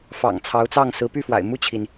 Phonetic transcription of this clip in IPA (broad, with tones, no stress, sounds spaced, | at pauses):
f ɑ̰˨˩ ŋ t͡sʰ ɑ˧˥ ʊ̯ t͡s ɑ˥˩ ŋ s ɹ̩˧˥ p y˥˩ f w a̰˨˩ ɪ̯ m u˥˩ t͡ɕʰ i˩ n